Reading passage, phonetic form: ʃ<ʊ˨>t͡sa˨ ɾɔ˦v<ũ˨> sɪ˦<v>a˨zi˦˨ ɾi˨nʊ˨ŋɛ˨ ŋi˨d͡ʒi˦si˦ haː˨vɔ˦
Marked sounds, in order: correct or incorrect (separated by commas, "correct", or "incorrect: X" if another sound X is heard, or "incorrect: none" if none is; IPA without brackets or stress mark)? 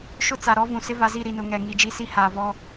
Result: incorrect: ʊ˦, correct, correct